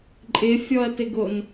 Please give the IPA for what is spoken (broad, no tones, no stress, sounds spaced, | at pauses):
ǃʼ ɪ fʲ ɔ ɐ̯ t ɪ ɡ o n